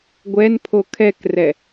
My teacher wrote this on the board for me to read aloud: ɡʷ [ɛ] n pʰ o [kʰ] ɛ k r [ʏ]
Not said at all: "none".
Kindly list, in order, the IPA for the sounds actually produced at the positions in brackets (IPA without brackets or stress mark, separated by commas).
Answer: ɛ, kʰ, ɛ